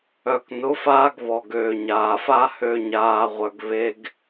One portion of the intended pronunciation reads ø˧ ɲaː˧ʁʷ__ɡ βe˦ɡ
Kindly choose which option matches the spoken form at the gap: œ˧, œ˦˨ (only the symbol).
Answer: œ˧